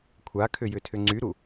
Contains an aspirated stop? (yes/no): yes